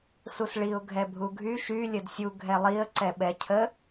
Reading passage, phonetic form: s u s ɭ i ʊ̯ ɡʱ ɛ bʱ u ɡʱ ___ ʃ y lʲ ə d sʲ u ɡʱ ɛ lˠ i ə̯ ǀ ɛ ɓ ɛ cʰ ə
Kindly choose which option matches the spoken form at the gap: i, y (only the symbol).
y